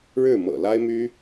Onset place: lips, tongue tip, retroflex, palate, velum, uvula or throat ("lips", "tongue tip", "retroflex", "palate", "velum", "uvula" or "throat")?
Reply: retroflex